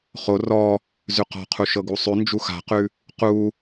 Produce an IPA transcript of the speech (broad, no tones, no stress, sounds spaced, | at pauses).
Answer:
χ o r ɔ | z ʉ q ɔ̤ qʰ u ʃ ɤ ɡ u sˤ ʉ n d͡ʒ u x a̤ q ʉ | q u